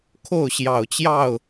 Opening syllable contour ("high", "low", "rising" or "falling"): falling